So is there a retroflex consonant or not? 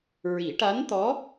yes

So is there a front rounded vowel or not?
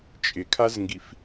no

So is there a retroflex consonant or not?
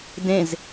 no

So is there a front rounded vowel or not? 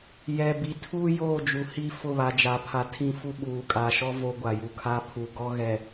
no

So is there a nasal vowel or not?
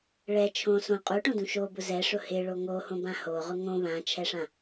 yes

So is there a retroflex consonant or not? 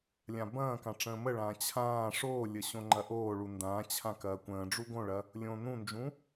yes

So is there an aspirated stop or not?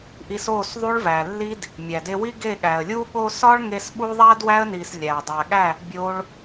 no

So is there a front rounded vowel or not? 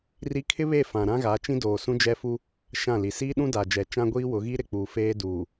no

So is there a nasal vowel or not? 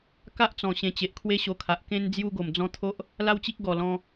yes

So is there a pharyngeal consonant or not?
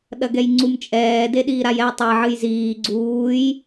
yes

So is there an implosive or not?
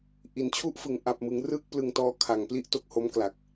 no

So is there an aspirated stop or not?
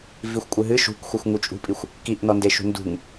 no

